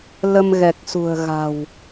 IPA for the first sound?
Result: l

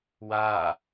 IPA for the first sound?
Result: w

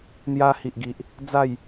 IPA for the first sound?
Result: n̪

